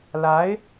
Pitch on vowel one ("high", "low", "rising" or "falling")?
rising